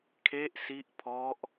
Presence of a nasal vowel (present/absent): absent